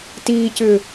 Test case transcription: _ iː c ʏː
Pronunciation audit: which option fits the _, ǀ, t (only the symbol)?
t